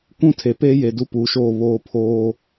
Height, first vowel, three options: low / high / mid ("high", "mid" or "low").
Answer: high